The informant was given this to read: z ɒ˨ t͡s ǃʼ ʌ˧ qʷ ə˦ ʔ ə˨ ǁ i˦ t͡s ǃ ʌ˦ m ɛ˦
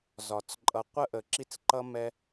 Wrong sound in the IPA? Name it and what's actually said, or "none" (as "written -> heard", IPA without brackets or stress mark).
none